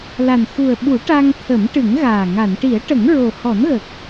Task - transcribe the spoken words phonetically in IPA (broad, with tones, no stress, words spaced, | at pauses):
la˨˩n xu˨˩ə̯ɓu˨˩˦ ʈa˧ŋ t̪ʰə˨˩˦mʈɨ˨˩˦ŋɣaː˨˩ ŋa˨˩˨nʈi˨˩˦ə̯ʈə˨˩˦ŋ ɹo˨˩hɔ˨˩˦nɣə˨˩k̚